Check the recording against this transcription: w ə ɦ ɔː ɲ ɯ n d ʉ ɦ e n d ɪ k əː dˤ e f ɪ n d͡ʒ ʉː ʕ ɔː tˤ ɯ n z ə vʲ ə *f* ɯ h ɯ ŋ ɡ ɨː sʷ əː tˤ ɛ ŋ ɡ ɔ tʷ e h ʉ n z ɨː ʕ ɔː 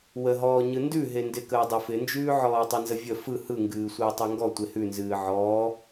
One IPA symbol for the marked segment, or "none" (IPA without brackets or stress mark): f